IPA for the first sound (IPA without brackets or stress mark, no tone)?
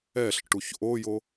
ɛ